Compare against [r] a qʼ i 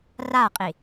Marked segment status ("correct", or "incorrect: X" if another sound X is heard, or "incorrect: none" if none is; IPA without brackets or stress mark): correct